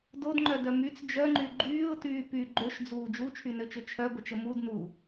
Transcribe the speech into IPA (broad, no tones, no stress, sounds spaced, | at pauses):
d o d ŋ͡ǃ œ d œ m y t͡s d͡ʒ œ ŋ͡ǃ y ɡ͡ǃ yː ʊ̯ t yː p y ɡ͡ǃ ø ʃ d͡z uː d͡ʒ u t͡ʃʰ y n ø t͡ʃ ø t͡ʃʰ œ ɡʷ ə t͡ʃ ə m u d n u